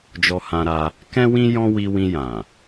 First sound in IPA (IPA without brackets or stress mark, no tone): d͡ʒ